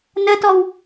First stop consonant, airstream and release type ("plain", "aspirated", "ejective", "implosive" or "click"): plain